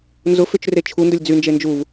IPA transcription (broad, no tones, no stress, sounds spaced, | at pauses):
n z ʊ f ʏ t͡ʃ r e t͡ʃʰ u n d ʊ lʲ d͡z y n d͡ʒ e n d͡ʒ u v